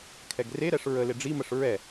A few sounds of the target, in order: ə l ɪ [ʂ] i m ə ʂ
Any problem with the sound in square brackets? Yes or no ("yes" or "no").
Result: yes